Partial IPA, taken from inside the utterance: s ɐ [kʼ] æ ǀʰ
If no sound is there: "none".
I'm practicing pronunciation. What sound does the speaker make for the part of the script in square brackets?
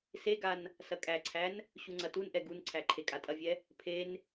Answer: kʼ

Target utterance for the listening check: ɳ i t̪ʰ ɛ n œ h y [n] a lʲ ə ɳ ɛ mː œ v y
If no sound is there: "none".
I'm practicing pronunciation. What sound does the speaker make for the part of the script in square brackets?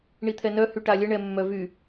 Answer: ʈ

